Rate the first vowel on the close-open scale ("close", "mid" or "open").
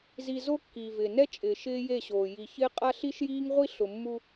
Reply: close